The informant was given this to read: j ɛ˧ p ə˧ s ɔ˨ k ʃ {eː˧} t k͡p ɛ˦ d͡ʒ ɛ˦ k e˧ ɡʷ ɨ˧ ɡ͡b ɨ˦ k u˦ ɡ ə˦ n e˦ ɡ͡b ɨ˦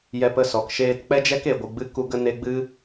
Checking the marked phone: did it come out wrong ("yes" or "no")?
no